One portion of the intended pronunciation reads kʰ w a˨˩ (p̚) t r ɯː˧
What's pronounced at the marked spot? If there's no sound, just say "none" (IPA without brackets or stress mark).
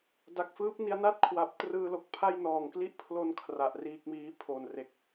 p̚